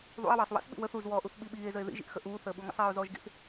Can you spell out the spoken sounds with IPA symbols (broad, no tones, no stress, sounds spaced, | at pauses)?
ðˤ ṵ e̯ w əː sˤ w ḭ s ɓ ḭ w ə θ u z w ɔː ʔ u θ ɓ i ɓ iː e̯ z ə e̯ ð ḭ ʒ ḭ ʔ x ə ʔ uː θ əː ɓ u ŋ ə̰ sˤ iː o̯ z ɔː ʒ ɡ ḭ θ